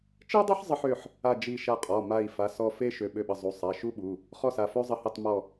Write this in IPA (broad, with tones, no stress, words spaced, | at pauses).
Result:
t͡ʃi˥dˤə˥ħ zˤə˥ħø˩˧˩ħ | a˦˨d͡ʒi˦˨ ʃa˦˨qʼɔ˩˧˩ma˦˨i̯ fa˩˧˩sɔ˦˨fe˥ʃø˩˧˩ ɓø˦˨ɓə˩˧˩ zˤu˩˧˩ sˤa˩˧˩ʃu˥ɓu˩˧˩ | χɔ˥sa˩˧˩ fø˥zˤə˦˨hi˦˨tˤ mɔ˦˨